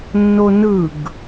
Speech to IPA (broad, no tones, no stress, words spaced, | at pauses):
nːonɯɡ